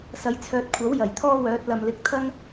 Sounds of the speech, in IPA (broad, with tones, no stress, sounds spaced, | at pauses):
s ɐ˨˧ j t͡sʰ œː˨ t̚ kʷʰ ɐ˨˥ w j ɐ˨˩ j t̪ʰ ɔː˥ w œː˨˥ t̚ l ɐ˨ m l ɪ˨˥ k̚ t̪ʰ ɐ˥ ŋ